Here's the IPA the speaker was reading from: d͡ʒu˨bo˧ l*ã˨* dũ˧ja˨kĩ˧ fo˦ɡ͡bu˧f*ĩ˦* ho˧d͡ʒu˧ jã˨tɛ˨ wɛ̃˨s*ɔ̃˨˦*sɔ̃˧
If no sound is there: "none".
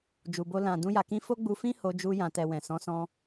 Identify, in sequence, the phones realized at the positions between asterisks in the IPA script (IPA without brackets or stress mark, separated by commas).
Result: ã˨, ĩ˦, ɔ̃˨˦